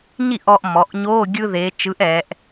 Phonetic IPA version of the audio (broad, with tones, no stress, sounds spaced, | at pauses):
ɲ i˥˩ ʔ ɔː˧ ʔ m ɔ˩˥ ʔ ɲ oː˧˥˧ ɡʲ ɯ˧ ð eː˩˧ t͡ʃ ɯ˩˥ ʔ ɛː˩˧ ʔ